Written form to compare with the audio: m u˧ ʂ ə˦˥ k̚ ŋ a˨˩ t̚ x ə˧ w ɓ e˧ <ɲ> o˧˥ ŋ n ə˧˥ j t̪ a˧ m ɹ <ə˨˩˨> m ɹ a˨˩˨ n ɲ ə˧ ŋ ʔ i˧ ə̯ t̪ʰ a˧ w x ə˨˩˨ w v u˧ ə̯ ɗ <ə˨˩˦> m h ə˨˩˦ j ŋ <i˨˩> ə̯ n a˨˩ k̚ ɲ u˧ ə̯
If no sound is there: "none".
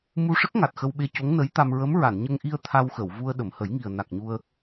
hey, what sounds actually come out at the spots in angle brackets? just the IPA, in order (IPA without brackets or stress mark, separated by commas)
c, ə˧˥, ə˨˩˨, i˨˩